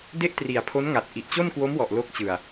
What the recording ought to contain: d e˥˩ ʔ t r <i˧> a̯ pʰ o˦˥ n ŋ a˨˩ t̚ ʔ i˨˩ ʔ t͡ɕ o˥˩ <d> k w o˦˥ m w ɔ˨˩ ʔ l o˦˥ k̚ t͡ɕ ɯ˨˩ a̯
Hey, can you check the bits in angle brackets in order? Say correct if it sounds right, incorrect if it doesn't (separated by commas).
incorrect, incorrect